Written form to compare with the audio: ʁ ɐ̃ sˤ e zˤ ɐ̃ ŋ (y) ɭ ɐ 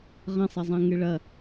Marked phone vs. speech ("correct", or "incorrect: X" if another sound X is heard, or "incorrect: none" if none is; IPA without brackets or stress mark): incorrect: ɨ